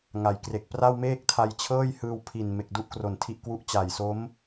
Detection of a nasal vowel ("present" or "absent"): absent